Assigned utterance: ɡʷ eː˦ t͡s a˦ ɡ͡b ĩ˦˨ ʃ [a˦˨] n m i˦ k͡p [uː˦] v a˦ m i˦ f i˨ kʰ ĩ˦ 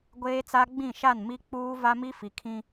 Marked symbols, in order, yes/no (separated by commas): yes, yes